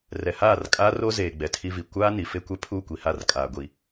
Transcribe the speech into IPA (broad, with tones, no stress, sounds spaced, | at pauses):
r ɛ˨ h aː˦˨ r kʼ aː˦ r o˦ z eː˨ ɡ͡b ɛ˨ tʰ i˦ v i˨ kʷ aː˦ n i˨ f e˦ kʷ ɛ˦ pʰ u˦˨ kʷ i˨ h a˦˨ r kʼ aː˨ ɡʷ i˨